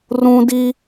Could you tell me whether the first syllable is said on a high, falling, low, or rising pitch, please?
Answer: high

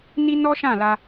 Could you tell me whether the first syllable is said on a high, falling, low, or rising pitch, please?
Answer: high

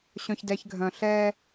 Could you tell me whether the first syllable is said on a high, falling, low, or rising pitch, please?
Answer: low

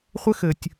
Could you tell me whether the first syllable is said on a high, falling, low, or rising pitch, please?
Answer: high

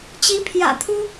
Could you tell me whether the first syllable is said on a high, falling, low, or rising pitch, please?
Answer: rising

